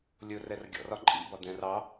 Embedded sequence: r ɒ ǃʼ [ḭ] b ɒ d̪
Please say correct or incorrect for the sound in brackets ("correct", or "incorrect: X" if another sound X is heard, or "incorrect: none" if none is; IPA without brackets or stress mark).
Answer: correct